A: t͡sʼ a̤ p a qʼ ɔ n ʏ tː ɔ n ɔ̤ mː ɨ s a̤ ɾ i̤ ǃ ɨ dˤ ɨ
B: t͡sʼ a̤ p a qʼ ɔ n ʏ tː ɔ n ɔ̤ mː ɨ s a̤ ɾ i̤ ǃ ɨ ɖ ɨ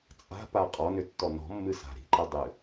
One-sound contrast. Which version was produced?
A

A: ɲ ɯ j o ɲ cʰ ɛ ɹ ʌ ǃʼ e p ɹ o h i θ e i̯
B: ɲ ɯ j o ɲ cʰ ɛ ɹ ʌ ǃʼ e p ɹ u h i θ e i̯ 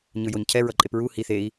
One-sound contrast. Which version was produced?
B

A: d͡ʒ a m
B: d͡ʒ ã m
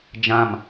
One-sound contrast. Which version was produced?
B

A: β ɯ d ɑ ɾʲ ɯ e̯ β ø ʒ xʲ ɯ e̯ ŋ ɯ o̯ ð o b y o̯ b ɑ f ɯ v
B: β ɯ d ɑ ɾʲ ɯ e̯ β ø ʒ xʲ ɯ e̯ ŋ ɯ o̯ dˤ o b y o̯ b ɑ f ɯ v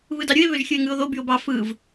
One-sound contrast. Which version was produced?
A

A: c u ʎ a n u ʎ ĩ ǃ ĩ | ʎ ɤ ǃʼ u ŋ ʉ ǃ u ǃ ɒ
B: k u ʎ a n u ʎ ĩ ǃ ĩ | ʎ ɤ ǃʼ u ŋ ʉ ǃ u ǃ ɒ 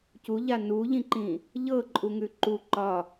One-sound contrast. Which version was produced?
A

